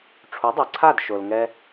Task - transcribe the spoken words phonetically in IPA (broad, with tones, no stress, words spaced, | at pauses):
ʈ͡ʂʰu˩˥dˤɛ˩ǀʰa˥˩d ʃo˩lŋɛ˧